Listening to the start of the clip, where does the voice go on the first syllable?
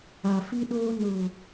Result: low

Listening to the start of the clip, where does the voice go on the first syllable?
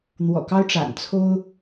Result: low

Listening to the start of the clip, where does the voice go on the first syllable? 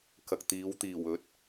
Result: low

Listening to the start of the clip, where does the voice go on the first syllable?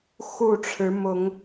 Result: falling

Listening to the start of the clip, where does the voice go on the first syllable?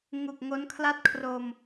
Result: low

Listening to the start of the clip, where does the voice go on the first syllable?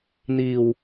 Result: low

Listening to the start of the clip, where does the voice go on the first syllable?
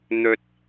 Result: low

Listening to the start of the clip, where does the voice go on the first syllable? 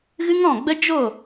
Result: high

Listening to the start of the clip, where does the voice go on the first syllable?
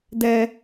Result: low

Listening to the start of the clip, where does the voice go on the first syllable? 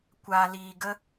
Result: low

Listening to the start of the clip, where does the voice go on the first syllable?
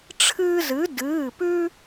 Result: high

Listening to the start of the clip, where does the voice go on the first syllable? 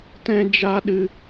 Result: high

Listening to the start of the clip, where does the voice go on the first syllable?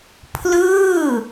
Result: falling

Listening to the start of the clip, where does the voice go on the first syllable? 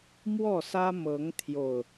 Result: falling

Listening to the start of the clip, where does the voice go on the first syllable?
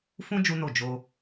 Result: high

